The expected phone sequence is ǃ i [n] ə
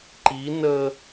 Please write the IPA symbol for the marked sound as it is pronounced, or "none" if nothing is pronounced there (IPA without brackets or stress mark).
n